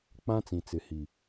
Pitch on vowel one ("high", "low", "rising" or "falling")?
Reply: high